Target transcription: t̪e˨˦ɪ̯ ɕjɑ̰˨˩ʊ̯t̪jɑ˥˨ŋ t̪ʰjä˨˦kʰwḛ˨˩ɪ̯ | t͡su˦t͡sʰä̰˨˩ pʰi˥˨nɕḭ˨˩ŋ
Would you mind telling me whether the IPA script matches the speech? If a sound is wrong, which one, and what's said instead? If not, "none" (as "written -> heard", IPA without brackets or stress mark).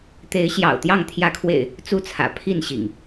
none